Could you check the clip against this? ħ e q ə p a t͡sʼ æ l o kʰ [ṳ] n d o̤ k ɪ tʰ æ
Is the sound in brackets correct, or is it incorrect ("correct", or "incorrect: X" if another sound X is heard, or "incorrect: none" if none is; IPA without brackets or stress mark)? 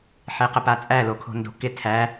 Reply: incorrect: o̤